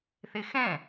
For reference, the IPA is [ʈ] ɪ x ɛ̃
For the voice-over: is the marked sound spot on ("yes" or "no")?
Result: no